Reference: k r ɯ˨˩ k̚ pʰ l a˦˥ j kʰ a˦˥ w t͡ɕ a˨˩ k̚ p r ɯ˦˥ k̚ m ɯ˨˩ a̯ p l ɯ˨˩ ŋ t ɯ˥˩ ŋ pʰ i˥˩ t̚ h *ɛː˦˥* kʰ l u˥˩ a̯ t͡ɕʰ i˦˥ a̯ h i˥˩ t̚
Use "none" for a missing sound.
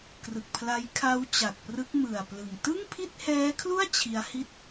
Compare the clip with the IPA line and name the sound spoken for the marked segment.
ɛː˦˥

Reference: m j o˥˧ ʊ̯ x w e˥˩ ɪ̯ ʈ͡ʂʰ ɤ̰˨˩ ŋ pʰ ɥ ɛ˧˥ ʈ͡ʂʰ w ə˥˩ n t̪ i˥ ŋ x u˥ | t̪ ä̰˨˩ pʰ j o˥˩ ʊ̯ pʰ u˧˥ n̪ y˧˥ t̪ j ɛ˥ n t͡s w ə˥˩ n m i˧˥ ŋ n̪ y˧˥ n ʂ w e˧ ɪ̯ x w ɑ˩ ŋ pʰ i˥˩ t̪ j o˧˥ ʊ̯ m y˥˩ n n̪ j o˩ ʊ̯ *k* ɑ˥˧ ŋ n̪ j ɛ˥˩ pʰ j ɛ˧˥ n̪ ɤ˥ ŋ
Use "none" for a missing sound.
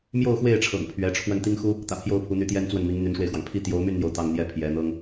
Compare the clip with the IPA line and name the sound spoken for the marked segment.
t̪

